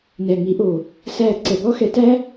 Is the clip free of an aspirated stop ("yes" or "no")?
yes